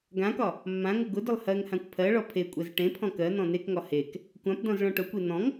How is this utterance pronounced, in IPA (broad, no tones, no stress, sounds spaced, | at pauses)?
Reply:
ɡ ã k ɒ | mː ã ŋ ʊ ɡ ʊ d ʊ lˠ h ɜ ŋ h ã kʷ pʰ ɜ ɭ ɔ pʰ e kʷʼ ɛ z ʈ ẽ pʰ ɔ̃ k ɜ n̪ ɔ̃ n e k ŋ ɒ h e k | kʷ ã p d ɔ̃ z ɭ ɔ̃ ʈ ʊ kʷ e n̪ ɔ̃ ŋ